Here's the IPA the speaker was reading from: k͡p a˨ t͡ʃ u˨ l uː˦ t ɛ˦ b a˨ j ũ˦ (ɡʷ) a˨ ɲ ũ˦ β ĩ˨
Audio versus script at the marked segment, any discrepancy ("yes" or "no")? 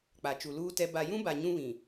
yes